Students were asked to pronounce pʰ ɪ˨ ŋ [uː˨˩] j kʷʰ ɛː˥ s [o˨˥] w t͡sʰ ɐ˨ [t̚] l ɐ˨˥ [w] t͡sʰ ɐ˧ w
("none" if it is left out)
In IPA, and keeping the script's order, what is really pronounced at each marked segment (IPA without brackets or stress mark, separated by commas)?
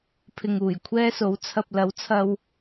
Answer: uː˨˩, o˨˥, p̚, w